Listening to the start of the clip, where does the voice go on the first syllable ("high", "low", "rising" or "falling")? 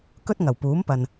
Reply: high